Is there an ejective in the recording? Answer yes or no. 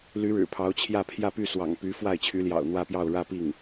no